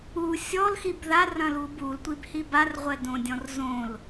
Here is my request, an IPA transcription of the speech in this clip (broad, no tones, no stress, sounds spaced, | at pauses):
u sʲ ɔ l x i b ð a r ɐ̃ l u b u l tʷ i b h i b a r ʁʷ ɛ d õ dʲ ɔ̃ r z õ l